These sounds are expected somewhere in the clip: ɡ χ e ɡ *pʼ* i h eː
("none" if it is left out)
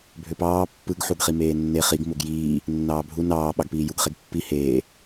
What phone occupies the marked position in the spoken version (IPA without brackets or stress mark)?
pː